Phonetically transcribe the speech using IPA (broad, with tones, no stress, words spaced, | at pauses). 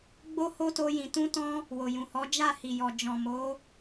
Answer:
ɡ͡bo˧ ho˦to˧jĩ˨ tũ˧tɔ̃˧ | wo˨jũ˨hɔ˨˦ d͡ʒa˦˨hi˨jɔ˨ d͡ʒɔ̃˨mo˨˦